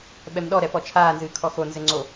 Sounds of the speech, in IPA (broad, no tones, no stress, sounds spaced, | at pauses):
ɓ ɛ m ɗ ɔ ɾ ɛ p ɔ t͡ʃʰ aː n z ɨː kʰ ɔ x o n z ɘ ŋ͡ǀ o